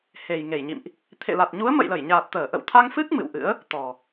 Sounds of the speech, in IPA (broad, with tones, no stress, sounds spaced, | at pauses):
h e˨˩ j ŋ e˧˩ j ɲ ḭ˧˨ m ʔ | t̪ʰ ḛ˧˨ l a˨˩ t̚ ɲ u˨˦ ə̯ m ə̰˧˨ j l ə˧˩ j ɲ aː˨˩ t̚ t̪ əː˧˩ ʔ ə̰˧˨ w t̪ʰ a˧ ŋ f ɨ˦˥ k̚ m ɨ̰˧˨ w ʔ ɨ̰˧˥ ə̯ | t̪ ɔ˨˩